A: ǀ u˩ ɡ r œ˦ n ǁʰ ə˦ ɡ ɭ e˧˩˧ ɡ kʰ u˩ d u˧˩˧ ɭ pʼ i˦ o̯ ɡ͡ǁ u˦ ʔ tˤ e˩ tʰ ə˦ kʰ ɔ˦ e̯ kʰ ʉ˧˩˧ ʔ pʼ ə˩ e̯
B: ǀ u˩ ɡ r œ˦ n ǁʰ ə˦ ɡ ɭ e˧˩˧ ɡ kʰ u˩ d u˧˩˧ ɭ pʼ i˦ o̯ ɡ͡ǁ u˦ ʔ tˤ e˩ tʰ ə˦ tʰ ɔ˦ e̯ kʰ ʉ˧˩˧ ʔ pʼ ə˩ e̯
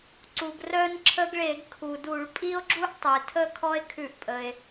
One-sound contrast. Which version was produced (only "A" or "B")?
A